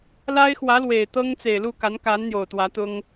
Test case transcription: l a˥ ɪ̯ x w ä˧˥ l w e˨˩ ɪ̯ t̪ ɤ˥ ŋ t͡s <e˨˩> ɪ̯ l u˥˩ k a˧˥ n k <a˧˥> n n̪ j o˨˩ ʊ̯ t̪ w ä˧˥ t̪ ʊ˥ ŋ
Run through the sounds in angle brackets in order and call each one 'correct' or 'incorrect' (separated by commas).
correct, correct